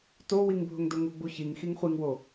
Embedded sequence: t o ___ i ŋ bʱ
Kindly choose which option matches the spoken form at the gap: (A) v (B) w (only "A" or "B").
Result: B